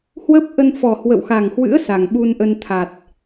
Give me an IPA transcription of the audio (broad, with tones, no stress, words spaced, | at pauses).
hwə˦˥p̚ʔə˧nfɔ˨˩hwə̰˧˨w xa˨˩ŋhwɨ̰˧˥ə̯ sa˨˩ŋɓu˧nʔə˧n t̪ʰa˨˩t̚